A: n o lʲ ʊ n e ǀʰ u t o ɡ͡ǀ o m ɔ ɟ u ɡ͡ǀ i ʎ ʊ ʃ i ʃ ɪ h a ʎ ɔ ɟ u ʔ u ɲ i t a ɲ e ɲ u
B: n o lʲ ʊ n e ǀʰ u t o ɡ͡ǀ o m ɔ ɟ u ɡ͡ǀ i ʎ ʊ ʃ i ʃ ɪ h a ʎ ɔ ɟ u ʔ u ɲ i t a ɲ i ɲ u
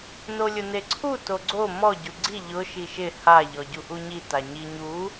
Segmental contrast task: B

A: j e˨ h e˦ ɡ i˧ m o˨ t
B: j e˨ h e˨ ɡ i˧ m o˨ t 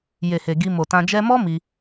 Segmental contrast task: B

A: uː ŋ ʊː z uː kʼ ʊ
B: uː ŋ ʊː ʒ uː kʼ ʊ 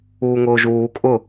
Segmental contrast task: B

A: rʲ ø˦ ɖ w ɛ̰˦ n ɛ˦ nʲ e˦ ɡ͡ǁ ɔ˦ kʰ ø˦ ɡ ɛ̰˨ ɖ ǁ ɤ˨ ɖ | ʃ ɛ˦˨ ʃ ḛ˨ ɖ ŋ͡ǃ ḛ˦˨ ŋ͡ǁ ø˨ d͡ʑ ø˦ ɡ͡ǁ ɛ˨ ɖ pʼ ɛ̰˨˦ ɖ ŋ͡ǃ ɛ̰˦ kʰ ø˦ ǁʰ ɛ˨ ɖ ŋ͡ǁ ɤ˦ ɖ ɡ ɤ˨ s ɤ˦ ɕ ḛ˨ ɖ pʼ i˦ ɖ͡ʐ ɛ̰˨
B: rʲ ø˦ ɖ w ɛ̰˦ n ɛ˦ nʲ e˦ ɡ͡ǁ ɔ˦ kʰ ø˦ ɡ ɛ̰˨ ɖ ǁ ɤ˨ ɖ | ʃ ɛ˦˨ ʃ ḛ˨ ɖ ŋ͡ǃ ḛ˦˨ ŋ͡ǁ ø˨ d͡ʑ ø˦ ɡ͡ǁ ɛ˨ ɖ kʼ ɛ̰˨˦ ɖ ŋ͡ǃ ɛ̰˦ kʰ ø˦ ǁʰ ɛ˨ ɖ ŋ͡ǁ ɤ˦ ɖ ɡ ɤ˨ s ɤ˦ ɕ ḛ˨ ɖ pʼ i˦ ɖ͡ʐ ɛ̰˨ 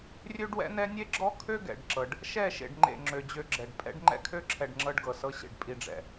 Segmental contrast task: A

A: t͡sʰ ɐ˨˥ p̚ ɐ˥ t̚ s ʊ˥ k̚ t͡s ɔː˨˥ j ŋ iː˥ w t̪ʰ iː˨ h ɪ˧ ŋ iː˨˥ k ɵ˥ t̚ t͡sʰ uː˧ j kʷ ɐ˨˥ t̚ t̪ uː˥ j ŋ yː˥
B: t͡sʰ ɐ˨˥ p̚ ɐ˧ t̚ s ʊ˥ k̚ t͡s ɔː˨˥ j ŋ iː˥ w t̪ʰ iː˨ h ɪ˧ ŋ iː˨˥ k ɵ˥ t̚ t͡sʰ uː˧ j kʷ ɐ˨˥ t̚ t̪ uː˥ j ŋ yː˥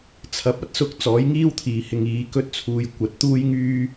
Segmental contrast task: A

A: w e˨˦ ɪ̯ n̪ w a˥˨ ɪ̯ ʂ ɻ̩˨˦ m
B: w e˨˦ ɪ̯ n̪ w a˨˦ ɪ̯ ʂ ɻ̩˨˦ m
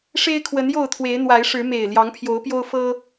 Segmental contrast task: B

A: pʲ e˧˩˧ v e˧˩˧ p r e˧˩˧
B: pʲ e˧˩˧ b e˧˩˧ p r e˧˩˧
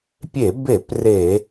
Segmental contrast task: B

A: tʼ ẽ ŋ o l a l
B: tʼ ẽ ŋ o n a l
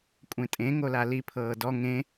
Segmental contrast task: A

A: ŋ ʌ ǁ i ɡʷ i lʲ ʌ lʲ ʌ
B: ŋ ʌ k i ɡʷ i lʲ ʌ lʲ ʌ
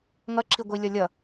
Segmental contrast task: A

